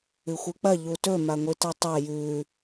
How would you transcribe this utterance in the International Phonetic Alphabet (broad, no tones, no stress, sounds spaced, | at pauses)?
ɨ xʷ ɨ k͡p ɐ ʎ u t ɵ m a ŋʷ i t a tˤ a j ʉ